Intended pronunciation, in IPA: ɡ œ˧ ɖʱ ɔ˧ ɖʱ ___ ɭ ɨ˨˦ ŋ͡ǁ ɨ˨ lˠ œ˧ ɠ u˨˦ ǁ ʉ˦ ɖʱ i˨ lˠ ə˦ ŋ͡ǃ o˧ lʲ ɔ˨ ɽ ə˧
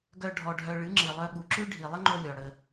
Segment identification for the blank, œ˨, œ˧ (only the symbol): œ˧